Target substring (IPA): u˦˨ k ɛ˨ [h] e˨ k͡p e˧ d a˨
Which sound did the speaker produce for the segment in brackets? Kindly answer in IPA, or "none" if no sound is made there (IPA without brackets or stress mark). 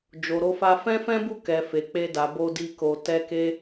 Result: f